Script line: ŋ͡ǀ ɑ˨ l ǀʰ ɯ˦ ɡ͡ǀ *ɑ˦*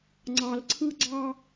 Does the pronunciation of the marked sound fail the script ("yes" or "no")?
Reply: no